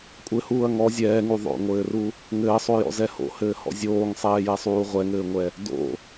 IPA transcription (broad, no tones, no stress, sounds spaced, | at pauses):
kʷʼ ɘ h uː ɐ̯ ŋ ɔ zʲ ɛː ŋ u ðˤ o̰ ŋʷ ɘː r u | ŋ ɘː sˤ o j ɔ̰ z ɛ h o̰ h ɘː h ɔ̰ zʲ oː ŋ sˤ ɛː j ɛ sˤ uː ʁʷ ɛ ŋ ɘː ŋʷ ɛ | d o̰